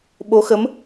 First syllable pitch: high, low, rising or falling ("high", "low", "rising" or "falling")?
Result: rising